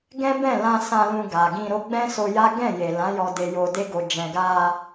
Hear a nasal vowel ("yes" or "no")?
yes